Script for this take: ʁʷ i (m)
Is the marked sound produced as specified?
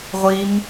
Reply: yes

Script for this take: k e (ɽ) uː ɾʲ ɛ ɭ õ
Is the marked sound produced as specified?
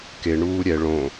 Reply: no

